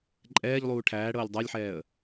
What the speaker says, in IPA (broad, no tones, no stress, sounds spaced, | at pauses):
ǃʼ ɛː ʎ lˠ uː ʈʰ æː ɽ ɤː lʲ dˤ a lʲ ħ ɛː ə̯